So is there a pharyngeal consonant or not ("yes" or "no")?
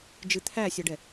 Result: no